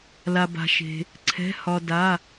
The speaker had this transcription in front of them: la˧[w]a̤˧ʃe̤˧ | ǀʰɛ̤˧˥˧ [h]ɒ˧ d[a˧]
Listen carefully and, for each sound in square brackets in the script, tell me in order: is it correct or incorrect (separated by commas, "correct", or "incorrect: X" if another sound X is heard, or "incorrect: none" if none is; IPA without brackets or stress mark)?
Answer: incorrect: b, correct, incorrect: a˧˥˧